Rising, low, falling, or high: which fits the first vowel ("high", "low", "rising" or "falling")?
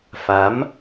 rising